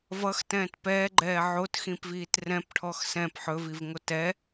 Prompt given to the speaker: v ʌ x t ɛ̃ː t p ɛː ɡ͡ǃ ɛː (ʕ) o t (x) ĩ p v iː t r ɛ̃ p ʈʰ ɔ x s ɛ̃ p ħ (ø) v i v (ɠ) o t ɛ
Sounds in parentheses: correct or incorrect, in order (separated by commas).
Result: correct, correct, incorrect, incorrect